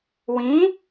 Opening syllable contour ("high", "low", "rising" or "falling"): rising